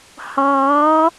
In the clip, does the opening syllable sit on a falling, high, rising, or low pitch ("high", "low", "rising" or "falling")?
rising